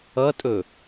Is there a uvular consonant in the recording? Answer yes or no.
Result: no